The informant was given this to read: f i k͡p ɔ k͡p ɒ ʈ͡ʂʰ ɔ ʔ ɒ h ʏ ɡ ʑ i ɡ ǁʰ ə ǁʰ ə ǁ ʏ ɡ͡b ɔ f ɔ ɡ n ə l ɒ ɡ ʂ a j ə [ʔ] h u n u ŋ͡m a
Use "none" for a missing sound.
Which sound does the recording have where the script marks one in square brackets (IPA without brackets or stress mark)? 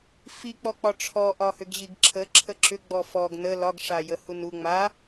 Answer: none